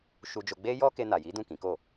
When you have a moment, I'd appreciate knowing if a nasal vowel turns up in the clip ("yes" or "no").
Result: yes